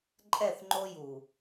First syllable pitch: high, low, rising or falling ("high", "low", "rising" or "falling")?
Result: falling